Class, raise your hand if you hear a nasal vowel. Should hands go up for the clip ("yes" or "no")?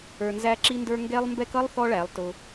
no